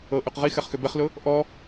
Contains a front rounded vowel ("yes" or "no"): yes